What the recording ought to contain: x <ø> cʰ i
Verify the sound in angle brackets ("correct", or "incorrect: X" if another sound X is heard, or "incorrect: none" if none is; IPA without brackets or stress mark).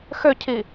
correct